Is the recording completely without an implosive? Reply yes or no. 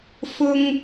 yes